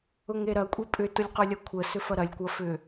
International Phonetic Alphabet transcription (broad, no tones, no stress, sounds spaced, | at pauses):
ʊ ŋ e ɾ ɐ kʷʼ e pʼ ʏ t ʊ lʲ q ʊ lʲ ɐ kʷʰ ə s ʏ f ɐ ɾ ɐ lʲ kʷ ɐ f ʏ